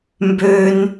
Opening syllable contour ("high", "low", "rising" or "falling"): high